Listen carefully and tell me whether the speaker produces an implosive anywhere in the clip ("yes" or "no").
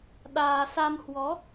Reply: yes